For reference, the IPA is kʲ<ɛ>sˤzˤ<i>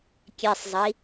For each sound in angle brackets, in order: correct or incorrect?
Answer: incorrect, correct

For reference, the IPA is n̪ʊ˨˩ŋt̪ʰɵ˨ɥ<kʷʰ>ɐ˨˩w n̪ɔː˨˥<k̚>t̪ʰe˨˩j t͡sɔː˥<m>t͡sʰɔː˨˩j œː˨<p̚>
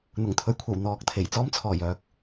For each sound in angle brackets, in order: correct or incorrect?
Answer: correct, correct, correct, incorrect

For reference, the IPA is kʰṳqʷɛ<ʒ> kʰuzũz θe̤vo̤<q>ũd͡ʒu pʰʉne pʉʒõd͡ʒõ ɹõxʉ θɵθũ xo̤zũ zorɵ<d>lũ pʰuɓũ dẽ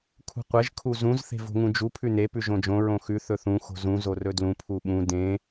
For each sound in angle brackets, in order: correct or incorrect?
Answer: correct, incorrect, correct

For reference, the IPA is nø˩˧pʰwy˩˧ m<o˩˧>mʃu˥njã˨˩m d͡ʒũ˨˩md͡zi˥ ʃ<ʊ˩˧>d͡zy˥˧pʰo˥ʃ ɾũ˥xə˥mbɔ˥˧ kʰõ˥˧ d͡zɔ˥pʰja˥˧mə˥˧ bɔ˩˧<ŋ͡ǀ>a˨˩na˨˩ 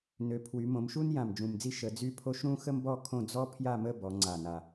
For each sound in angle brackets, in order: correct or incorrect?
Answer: incorrect, incorrect, correct

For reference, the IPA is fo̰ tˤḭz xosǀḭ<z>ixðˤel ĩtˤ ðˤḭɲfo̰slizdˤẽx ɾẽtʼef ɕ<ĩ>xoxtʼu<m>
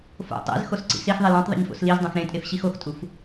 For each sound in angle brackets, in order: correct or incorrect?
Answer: incorrect, incorrect, incorrect

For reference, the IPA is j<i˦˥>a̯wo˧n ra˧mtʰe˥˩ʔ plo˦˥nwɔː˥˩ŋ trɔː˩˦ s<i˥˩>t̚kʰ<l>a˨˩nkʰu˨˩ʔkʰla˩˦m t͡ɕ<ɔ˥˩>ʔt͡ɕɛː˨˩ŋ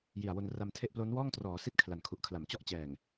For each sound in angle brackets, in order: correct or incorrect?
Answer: incorrect, correct, correct, correct

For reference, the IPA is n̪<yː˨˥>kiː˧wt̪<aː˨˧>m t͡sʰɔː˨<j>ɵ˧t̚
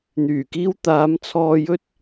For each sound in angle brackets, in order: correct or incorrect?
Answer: incorrect, correct, correct

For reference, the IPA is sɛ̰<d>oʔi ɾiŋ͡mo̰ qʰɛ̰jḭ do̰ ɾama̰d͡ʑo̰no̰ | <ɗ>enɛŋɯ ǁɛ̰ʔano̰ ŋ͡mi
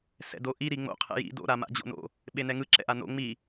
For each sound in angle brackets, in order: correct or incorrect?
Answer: correct, incorrect

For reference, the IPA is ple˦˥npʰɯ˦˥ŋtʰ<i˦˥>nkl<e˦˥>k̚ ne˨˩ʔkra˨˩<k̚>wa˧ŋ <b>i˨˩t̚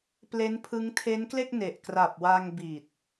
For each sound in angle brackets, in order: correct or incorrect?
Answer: incorrect, incorrect, incorrect, correct

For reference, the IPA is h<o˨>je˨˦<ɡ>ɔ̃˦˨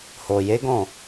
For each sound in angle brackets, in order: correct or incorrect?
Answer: correct, correct

